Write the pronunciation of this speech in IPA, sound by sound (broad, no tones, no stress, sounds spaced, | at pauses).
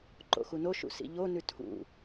ǃ o̰ x u n o ʃ ṵ s ḭ ʎ o n ʉ tʰ ṵ